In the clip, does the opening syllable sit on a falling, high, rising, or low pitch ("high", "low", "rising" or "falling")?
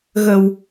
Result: low